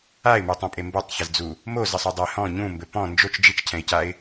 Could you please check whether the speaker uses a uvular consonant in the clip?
no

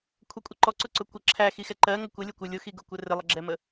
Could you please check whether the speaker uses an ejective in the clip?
yes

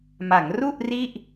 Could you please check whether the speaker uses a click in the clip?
no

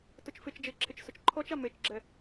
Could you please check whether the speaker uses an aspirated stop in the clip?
yes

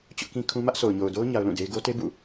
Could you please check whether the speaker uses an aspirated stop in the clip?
yes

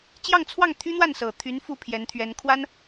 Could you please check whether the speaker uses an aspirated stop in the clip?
yes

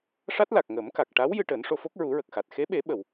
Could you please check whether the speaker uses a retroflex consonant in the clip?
yes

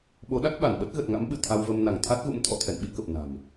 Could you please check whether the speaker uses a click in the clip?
no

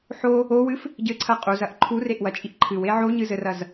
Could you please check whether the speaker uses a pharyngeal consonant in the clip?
yes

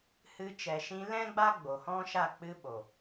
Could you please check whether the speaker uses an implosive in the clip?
yes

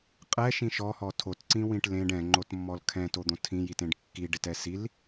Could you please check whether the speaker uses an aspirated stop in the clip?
yes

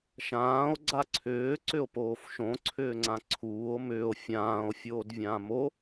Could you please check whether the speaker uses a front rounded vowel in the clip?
yes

